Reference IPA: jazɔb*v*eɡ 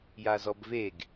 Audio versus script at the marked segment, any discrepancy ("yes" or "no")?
no